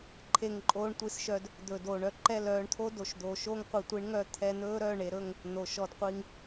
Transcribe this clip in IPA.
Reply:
ǃʰ e˧ ŋ ǃʼ oː˧ ɳ tʷ i˨˦ s ʃ œ˧ d | d̪ ɵ˨ d oː˨ ɳ œ˧ ǃ ɛ˦˨ l œː˧ ɳ t̪ʰ o˦ d o˨ ʃ d̪ oː˨ ʃ oː˦ ŋ qʷ i˨ tʷ i˨˦ ɳ ŋ œ˧ t̪ʰ ɛ˧ n̪ ɵː˦ ɾ œ˦˨ ɳ e˨ ɾ ɵ˦˨ ŋ | n̪ o˨ ʃ ɔ˧ d qʷ i˧ ŋ

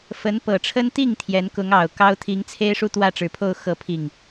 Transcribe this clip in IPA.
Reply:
f ə˧˥ n p ɤ˨˩ ʈ͡ʂʰ ə˥ n t̪ i˥˩ ŋ t̪ʰ j ɛ˧˥ n k ʊ˧˥ ŋ ɑ˨˩ ʊ̯ k ɑ˥ ʊ̯ t̪ʰ i˧˥ ŋ t͡sʰ e˥ ɪ̯ ʂ u˥˧ t̪ w ä˥˩ ʈ͡ʂ ɻ̩˨˩ pʰ o˥˧ ʊ̯ x ɤ˥˧ pʰ i˥˩ ŋ

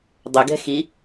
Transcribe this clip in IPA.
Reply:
dˤ ʏ ɡ ɛ̤ x i

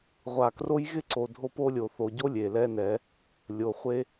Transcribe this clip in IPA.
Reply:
ʁʷ a˨ k r o˦ j ɣ ɪ˦ ǀ o˨ dʱ o˦ p o˦ lʲ o˨ θ o˨ ɟ o˦ lʲ e˨ l ɛ˦ n ɛ˨˦ | lʲ o˨ χʷ e˦

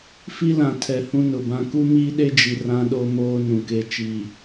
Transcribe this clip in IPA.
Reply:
f i˦ l ã˨ tʰ ɛ˨ h ũ˦ n ʊ˨ b ã˦ k u˦ m iː˦ ɗ e˦ d͡ʒ i˨ r ã˦ ɗ o˦ m oː˦ n ũ˨ k e˦ t͡ʃ iː˨

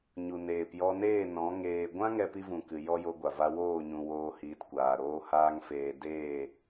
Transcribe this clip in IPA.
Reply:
ɲ u˨ n eː˨ p j ɔ˧ n eː˦˨ n ɔ̃˨˦ ŋ eː˨ ɡʷ ã˦ ŋ ɛ˦ p i˦ v ũ˨ k ɨ˨ j ɔ˦ j o˧ ɡʷ a˨ v a˧ w oː˦˨ ɲ ũ˨ w oː˦ h iː˧ t kʷ aː˨ ɾ oː˧ h aː˧ ŋ f eː˨ d eː˦˨

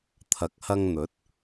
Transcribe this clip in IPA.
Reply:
t̪ʰ ɐ˨ k̚ h ɐ˧ ŋ n̪ ɵ˨˥ t̚

